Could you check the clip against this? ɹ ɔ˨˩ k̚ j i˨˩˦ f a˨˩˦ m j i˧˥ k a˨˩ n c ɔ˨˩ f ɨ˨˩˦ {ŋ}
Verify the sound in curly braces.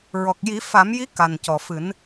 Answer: incorrect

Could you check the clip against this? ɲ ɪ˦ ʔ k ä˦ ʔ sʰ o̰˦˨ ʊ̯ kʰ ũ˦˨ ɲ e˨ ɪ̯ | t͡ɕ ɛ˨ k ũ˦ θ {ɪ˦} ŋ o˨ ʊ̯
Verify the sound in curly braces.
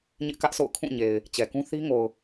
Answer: incorrect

